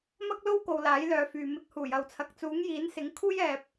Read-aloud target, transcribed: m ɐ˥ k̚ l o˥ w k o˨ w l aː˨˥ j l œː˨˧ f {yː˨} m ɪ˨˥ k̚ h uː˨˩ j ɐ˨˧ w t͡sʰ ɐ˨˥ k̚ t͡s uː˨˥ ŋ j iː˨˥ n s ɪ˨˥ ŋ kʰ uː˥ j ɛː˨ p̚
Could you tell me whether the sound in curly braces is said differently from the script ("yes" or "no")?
no